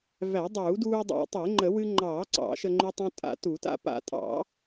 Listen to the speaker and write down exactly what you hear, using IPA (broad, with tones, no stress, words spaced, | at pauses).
væ˨˩˦dˤuː˨˩˦duː˧ dˤa̰˨˩˦tˤe˨˩˦ŋ͡ǃə˨˩˦ wɨ˧ŋ͡ǃɑː˨˩˦ ǀɑ̰˨˩˦ʃə˧ŋ͡ǃy˧tˤũ˧ tʼa̰˨˩˦tu˨˩˦ta̰˧ pa̰˨˩˦tʼɑ̰˨˩˦